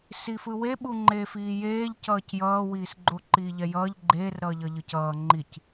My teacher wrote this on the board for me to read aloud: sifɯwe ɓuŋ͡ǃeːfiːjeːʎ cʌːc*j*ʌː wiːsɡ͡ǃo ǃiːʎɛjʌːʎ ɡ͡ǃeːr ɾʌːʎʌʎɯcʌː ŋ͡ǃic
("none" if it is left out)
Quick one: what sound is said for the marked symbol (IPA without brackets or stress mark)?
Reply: j